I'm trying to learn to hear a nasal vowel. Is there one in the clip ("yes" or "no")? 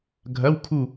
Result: no